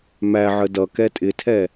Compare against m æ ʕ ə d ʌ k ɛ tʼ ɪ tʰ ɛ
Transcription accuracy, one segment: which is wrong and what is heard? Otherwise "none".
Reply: none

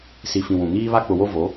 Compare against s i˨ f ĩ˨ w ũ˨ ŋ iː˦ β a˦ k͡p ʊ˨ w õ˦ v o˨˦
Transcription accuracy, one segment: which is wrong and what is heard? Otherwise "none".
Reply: õ˦ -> o˦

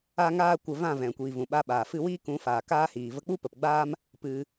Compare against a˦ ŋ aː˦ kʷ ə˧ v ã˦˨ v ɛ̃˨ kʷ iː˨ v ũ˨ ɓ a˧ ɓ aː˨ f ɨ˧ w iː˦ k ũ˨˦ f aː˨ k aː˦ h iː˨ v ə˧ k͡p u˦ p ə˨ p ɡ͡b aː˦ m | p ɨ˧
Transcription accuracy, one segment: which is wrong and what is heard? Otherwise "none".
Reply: none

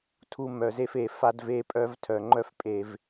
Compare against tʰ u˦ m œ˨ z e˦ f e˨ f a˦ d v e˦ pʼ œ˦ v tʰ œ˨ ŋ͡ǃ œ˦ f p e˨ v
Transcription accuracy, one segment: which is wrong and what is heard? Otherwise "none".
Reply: p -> pʼ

